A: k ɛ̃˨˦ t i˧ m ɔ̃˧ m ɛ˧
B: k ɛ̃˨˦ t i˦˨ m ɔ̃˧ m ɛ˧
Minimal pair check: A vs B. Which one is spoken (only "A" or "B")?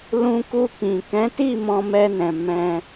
B